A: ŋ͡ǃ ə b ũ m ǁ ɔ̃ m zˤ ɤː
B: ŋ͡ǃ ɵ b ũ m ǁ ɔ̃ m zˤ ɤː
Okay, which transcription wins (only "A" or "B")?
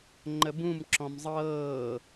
A